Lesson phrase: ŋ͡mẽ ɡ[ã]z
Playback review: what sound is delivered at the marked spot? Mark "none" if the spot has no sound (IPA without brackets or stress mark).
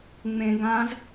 ã